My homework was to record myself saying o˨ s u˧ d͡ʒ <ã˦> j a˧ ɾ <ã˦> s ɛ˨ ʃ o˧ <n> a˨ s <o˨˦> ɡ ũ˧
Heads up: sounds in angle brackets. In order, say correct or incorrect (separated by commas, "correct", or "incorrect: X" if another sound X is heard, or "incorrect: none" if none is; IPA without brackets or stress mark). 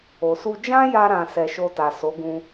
correct, incorrect: ã˨, incorrect: t, correct